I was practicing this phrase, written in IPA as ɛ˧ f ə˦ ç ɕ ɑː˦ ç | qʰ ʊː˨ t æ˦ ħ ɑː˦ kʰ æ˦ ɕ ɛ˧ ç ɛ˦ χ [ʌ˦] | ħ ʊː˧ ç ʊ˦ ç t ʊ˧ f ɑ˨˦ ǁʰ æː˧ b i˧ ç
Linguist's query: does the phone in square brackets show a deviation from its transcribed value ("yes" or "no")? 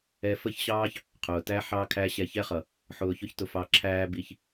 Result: yes